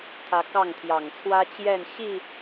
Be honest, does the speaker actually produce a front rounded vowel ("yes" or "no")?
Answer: no